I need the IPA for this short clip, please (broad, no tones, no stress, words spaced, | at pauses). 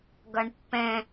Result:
ɡʌɳpːɛ̃